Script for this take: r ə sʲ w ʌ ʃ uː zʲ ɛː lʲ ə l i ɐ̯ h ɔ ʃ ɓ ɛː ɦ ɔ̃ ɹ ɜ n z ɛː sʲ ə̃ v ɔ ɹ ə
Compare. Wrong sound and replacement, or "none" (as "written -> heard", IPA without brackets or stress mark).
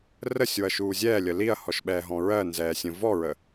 none